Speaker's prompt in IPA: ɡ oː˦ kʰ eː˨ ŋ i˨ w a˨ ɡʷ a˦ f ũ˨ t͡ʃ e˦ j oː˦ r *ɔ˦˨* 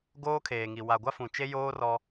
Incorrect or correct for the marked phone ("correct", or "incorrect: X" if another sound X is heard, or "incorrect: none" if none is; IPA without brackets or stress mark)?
incorrect: ɔ˦